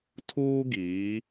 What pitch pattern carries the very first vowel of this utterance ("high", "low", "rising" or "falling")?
high